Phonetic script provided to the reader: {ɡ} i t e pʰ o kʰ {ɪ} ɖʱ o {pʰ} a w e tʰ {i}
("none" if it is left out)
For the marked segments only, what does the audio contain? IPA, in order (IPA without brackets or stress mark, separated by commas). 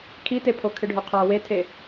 kʰ, ɪ, qʰ, e